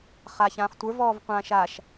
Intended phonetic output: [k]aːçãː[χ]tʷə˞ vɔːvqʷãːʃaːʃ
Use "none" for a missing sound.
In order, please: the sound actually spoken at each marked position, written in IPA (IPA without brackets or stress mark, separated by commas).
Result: χ, χ